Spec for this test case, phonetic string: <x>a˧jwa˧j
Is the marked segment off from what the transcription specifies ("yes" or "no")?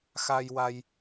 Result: no